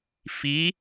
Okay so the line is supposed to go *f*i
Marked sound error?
no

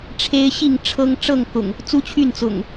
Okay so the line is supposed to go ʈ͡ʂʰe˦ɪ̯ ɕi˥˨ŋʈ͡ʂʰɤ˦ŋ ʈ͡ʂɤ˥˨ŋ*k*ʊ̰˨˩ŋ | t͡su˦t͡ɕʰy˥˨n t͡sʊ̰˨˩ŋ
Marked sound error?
no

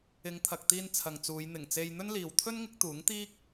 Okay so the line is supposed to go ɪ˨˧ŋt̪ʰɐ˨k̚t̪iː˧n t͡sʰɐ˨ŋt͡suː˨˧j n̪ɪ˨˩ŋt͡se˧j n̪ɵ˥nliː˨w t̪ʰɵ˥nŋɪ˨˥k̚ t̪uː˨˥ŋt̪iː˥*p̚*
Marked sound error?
yes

